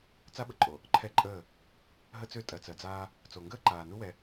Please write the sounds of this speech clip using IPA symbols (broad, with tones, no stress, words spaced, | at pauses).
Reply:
t͡sa˦ɓə˨ǃʼo˨ | ǃʰɛ˦ǃʼəː˦˨ | ɦə˦t͡sø˦˨ tʼɜ˨t͡sɜ˨d͡zaː˦ | t͡so˨ŋɡəː˦ǃaː˨nu˦ wɛ˦